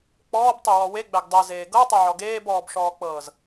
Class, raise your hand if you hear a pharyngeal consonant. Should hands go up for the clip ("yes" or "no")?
yes